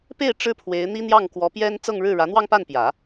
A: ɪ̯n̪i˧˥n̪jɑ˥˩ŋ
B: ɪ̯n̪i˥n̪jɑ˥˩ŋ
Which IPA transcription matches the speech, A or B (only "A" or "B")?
B